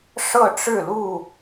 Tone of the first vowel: falling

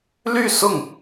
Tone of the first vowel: falling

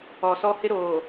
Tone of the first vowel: low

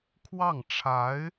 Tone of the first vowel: falling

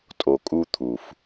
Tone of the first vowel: low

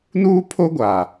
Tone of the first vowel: high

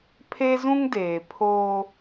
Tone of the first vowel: high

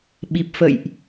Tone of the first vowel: low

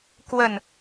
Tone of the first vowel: falling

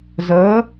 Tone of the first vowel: rising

